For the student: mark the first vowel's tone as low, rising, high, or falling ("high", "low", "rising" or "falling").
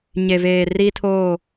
low